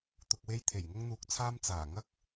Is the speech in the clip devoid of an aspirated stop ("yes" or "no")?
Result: no